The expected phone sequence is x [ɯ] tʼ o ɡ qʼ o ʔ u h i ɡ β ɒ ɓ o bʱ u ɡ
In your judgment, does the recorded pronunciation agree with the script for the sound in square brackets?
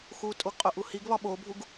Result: no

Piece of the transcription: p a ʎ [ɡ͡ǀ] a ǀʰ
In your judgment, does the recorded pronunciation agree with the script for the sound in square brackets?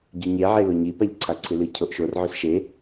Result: no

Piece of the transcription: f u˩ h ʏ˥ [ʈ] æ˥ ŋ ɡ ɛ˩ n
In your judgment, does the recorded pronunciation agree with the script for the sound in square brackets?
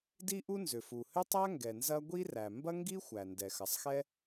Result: no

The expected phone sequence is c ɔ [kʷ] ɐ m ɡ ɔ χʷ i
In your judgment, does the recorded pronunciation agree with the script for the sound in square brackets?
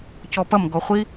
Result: no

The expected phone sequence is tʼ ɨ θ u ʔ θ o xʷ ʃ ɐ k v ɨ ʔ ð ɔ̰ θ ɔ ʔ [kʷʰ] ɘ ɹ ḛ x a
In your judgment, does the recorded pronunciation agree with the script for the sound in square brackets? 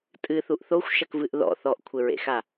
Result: yes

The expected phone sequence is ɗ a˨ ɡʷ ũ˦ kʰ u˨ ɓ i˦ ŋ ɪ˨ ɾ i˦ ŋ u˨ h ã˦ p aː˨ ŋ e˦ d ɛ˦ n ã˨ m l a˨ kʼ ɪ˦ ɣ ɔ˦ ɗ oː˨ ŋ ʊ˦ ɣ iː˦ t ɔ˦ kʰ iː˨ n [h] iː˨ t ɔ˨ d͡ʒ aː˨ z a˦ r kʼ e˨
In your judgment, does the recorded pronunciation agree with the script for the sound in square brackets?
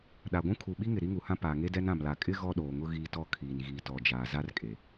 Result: no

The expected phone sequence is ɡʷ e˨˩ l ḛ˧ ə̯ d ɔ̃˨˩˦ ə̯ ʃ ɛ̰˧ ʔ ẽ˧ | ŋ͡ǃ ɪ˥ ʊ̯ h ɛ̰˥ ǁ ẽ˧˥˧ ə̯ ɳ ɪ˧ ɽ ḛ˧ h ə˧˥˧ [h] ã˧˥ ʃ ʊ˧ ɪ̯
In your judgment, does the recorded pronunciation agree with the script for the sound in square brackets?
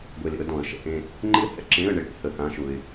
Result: yes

